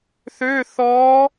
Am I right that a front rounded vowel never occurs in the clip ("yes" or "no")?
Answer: no